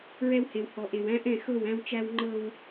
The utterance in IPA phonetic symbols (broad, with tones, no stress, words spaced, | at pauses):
ɹɛ˦whe˨w hɔ˨ʔe˨w æ̃˦ʔɛ̃˦˨xɤ˦˨w æ̃˦wt͡ʃæ˦w ŋ͡ǃɤ˦w